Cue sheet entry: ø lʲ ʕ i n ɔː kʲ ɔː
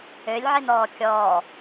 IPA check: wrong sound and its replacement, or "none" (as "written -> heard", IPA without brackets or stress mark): none